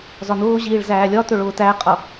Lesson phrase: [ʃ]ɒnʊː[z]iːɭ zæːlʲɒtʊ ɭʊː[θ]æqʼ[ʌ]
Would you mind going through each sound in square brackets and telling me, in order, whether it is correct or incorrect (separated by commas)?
incorrect, incorrect, incorrect, correct